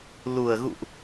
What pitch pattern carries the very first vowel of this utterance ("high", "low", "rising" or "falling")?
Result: low